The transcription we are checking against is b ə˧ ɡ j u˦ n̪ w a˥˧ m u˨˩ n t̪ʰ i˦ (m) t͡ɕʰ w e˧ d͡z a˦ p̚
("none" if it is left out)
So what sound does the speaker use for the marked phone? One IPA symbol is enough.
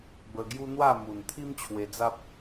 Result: m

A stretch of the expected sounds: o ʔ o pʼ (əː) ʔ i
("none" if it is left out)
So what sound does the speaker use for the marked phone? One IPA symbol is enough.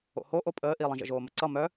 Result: əː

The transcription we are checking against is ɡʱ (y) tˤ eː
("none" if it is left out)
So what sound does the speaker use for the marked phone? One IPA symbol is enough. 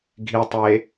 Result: i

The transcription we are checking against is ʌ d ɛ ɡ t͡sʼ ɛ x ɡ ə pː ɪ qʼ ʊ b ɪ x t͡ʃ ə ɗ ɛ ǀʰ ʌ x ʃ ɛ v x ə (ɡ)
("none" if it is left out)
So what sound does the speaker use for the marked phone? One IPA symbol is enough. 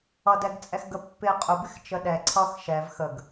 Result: ɡ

